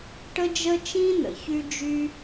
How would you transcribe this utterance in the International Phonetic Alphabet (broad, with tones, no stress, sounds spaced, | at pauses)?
ʈ ə˥ d͡ʒ ə˥ t͡ʃ ĩ˥ n̪ ə̰˩ ç y˥ d͡ʒ y˥